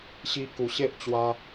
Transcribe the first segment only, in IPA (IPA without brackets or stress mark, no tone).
ɕ